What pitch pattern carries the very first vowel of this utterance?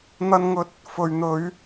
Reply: high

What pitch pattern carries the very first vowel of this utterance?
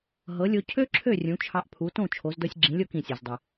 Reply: rising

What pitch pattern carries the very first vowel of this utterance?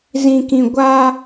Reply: low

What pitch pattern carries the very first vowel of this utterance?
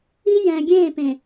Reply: high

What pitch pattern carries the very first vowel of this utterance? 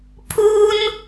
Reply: high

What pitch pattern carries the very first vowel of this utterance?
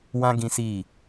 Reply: high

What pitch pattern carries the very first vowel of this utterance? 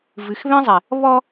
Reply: low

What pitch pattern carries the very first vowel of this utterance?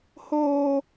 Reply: high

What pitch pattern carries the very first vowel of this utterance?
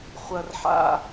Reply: high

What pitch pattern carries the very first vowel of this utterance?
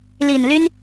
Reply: low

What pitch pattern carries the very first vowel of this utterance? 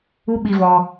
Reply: high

